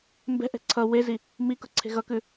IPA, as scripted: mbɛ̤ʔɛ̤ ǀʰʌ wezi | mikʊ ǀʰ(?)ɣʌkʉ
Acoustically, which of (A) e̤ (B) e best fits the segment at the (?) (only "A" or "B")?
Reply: A